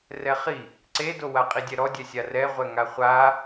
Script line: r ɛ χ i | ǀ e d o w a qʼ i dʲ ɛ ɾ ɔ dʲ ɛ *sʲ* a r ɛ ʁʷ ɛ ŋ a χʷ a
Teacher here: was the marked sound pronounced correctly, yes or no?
yes